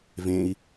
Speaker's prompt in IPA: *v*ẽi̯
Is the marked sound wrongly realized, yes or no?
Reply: no